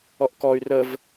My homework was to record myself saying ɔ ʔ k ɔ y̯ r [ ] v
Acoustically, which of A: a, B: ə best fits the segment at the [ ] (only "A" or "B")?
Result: B